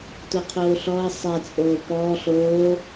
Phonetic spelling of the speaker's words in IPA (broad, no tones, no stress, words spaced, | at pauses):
toqʰoːɬɔə̯ sˤɛ t͡sʼoːpɔː ɬoː